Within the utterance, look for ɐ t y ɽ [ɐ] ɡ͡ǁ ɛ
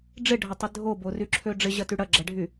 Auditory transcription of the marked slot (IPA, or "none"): ɐ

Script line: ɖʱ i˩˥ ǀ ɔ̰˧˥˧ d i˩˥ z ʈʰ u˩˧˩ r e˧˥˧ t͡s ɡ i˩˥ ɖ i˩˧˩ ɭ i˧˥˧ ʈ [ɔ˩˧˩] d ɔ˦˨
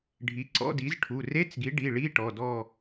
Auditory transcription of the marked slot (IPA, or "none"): ɔ˩˧˩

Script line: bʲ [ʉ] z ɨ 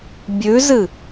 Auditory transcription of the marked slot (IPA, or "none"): ʉ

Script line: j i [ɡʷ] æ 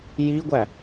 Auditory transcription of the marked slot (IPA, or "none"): ɡʷ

